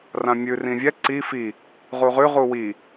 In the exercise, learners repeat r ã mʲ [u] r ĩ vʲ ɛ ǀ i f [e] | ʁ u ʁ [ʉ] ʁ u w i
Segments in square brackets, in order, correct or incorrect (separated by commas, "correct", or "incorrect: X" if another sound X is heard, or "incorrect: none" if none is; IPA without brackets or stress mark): incorrect: ʉ, incorrect: i, correct